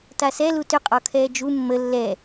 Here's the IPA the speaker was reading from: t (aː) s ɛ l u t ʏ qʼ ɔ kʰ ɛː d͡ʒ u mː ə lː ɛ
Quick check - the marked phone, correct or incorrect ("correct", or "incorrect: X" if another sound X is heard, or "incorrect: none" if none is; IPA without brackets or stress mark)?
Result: incorrect: a